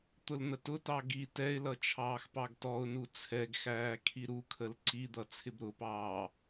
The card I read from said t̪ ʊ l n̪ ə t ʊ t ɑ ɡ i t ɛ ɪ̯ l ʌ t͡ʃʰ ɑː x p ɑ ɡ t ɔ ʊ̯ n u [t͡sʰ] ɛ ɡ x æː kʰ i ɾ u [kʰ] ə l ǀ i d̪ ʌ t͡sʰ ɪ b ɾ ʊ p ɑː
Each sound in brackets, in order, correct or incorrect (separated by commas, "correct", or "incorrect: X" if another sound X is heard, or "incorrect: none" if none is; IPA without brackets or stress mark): correct, correct